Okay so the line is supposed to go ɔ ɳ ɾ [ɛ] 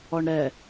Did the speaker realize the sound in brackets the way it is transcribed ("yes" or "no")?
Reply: yes